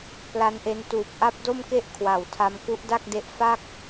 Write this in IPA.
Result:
p l a˦˥ n ʔ e˦˥ n t uː˨˩ p̚ ʔ a˦˥ p̚ d o˥˩ m k e˥˩ ʔ kʰ w a˨˩ w tʰ a˧ m k u˦˥ ʔ d a˥˩ k̚ d e˦˥ ʔ f a˥˩ k̚

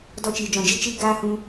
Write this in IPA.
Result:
d ɔ˧ t͡ʃ iː˨ d͡ʒ ɔ̃˨ d͡ʒ i˦ t͡ʃ iː˦ ɡ aː˦ h ũ˧

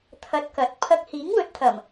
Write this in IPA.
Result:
t̪ʰ ɐ˧ t̚ k ɐ˨˥ t̚ pʰ ɐ˧ k̚ h iː˨˥ ŋ w ɵ˨˥ t̚ t̪ʰ ɐ˨˩ m

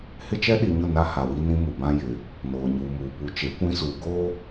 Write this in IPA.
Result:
h ɪ˦ t͡ʃ ɛ˦ ɗ i˨ ɲ ʊ˦˨ n a˦ h a˨ w i˦ n ĩ˦ m u˨ b ã˦ j ɪ˨ | n oː˨ ɲ uː˨ m uː˨ p u˨ t͡ʃ e˨˦ kʷ ĩ˦ s uː˨ ɡ oː˦

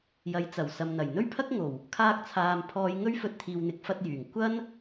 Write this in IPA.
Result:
j ɐ˨˥ j t͡s ɐ˨˩ w s ɐ˨ m n̪ ɐ˨˩ j n̪ ɵ˥ ɥ pʰ ɐ˥ k̚ ŋ o˨˩ w | kʰ aː˧ k̚ t͡sʰ aː˨ m pʰ ɔː˨˧ j ŋ ɵ˥ ɥ f ɵ˧ t̚ t̪ʰ iː˨ w n̪ ɪ˨˥ k̚ f ɐ˧ t̚ j yː˨˩ ŋ kʷ ɐ˥ n

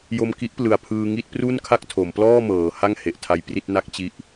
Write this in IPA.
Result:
j o˧ m k i˦˥ ʔ p l ɯ˨˩ a̯ pʰ ɯː˧ ŋ i˥˩ t̚ p r u˥˩ n kʰ a˥˩ k̚ tʰ o˩˦ m p l ɔː˥˩ m ɤː˩˦ h a˥˩ ŋ h e˨˩ ʔ tʰ a˧ j p r i˥˩ t̚ n a˦˥ k̚ t͡ɕ i˦˥ ʔ

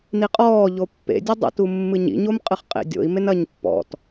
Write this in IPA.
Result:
n i qʼ ɔː ʎ o pː ḛ dʲ ɘ dˤ ḭ t u mː ɨ ɲ ḭ ɲ o m qʼ ɨ χ qʼ ḛ dʲ o̰ i̯ m e n ɐː ɲ pː ɔ̰ t

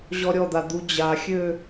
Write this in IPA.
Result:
ʑ ɔ ɾʲ ɔ d̪ a d̪ u d͡ʑ a xʲ ø

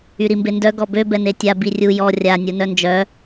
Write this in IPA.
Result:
y ɾ i m b e n d œ ɡ ɔ b ø b ɛ n e tʲ a b i rʲ u j ɔ rʲ a nʲ u n œ n d͡ʒ œ

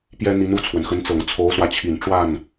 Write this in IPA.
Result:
p j ɛ˥ n̪ i˧˥ n u˥˩ t͡sʰ w ə˩ n x ə˧˥ n t͡s ɤ˨˩ ŋ t͡sʰ o˧˥ ʊ̯ s w ä˧ t͡ɕʰ i˨˩ n ʈ͡ʂ w a˥˩ n

